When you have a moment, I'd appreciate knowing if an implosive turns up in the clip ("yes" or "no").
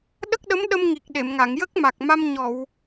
yes